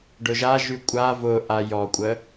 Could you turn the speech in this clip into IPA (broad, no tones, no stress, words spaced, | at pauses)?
ɖʊʒaʒy kʷʼa vʊ ʔajɔkʷʼə